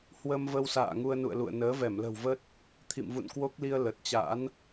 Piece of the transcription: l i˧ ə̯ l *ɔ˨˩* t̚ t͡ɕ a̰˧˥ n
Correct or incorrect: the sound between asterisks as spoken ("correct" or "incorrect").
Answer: incorrect